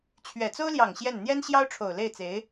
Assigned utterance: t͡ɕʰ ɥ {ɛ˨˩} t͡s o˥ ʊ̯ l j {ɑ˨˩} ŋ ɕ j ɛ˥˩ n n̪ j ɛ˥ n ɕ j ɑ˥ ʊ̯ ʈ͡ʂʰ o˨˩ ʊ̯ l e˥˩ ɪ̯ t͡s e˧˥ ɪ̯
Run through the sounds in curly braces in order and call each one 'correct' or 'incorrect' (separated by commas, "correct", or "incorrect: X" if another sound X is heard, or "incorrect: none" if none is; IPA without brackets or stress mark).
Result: correct, correct